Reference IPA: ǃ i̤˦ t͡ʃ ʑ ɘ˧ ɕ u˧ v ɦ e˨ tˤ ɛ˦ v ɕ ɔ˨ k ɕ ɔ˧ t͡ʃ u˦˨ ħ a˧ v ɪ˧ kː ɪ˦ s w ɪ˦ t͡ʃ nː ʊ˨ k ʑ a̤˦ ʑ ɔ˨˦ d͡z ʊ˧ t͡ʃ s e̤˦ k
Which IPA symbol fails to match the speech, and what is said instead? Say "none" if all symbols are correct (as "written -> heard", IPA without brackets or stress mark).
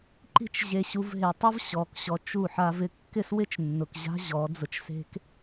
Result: ɘ˧ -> e˧